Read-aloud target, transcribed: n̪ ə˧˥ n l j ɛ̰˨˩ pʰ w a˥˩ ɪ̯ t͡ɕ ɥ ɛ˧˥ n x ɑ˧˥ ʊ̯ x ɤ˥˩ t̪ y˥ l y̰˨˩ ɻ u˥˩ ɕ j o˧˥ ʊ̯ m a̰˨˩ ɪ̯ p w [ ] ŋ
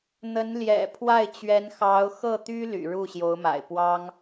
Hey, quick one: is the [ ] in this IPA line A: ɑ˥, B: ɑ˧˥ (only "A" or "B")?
A